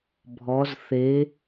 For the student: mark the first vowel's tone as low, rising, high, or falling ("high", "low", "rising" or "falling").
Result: rising